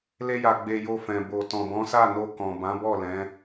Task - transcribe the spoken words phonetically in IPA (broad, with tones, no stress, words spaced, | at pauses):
le˧ja˨ɡ͡be˨ jo˧fɛ̃˨ bo˨ tɔ̃˨bɔ̃˨˦sa˦˨no˧ kɔ̃˨ bã˨˦bɔ˦˨lɛ̃˨˦